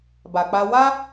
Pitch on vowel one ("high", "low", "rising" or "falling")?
low